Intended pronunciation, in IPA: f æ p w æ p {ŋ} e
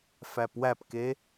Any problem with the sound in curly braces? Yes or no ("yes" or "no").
yes